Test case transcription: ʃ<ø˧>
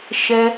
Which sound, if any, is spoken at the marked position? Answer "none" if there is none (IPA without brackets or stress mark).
ɛ˧